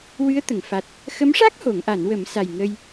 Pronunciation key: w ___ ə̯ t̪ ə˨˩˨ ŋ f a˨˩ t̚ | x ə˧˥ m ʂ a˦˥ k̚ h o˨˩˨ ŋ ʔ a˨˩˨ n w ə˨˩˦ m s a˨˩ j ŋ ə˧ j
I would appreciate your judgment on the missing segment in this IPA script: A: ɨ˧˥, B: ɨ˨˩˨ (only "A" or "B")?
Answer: A